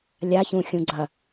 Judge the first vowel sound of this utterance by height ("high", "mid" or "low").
low